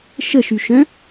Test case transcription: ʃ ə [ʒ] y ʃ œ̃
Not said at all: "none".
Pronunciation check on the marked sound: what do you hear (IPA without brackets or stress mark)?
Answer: ʃ